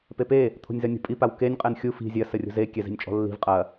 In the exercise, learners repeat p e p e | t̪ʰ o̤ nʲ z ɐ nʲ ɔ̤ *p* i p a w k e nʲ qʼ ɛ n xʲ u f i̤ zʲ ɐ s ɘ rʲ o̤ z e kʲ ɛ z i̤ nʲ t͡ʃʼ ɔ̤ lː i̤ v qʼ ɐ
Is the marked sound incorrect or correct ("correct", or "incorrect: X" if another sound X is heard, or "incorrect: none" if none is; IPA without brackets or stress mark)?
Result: incorrect: pʼ